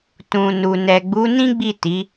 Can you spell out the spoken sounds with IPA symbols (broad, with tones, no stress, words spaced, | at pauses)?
tũ˨ nu˨ nɛ˨ɡ͡bu˨˦nĩ˦ɡ͡bi˦˨ ti˨˦